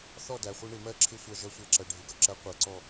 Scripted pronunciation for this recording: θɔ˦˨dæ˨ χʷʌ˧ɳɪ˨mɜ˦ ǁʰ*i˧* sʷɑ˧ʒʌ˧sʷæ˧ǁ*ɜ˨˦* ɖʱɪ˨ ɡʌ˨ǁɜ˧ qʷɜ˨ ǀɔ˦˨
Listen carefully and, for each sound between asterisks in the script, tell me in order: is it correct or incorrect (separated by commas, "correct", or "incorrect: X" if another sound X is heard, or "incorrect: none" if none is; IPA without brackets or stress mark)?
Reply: incorrect: ɪ˧, incorrect: ɜ˨